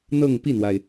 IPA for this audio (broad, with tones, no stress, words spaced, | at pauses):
n̪ɤ˥˧ŋpi˥˩n̪wa˩ɪ̯